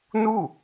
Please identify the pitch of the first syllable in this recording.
falling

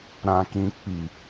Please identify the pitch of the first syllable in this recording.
low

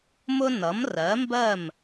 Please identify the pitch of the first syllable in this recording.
high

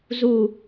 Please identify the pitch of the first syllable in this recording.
falling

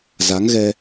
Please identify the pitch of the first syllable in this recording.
rising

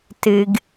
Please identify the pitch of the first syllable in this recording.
low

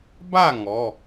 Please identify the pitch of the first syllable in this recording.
falling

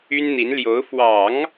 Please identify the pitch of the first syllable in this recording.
high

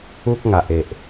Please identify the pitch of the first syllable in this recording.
high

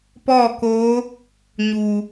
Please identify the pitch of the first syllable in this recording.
falling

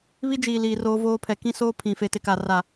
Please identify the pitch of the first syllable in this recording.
high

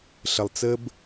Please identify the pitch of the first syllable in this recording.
low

